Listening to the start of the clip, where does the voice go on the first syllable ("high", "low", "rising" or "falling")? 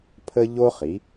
high